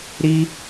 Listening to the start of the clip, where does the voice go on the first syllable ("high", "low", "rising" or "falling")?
high